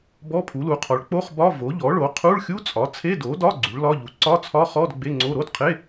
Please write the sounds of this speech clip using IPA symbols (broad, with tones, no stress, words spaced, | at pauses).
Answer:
bɔ˧˥˧pʰu˩˥lu˩˥qʰɔ˩˥ɭ k͡po˧˥˧χbɒ˧˥˧ vo˩˥ʎɔ˩˥ɭo˩˥ qʰu˧˥˧ɭxʲu˧˥˧t͡sʼɒ˩˥ t͡sʰe˧˥˧do˩˥dɒ˧˥˧ ɡ͡ǀu˩˥ɭlɒ˧˥˧ʎu˩˥ ǀɒ˧˥˧t͡sʰɒ˧˥˧χɔ˧˥˧d ɡ͡be˧˥˧ŋ͡ǀo˧˥˧ ɾo˧˥˧dqʰe˧˥˧